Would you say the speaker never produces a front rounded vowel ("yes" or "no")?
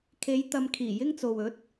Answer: yes